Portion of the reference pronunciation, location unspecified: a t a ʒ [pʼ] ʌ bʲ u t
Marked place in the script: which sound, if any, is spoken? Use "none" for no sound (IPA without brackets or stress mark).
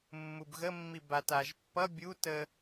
pː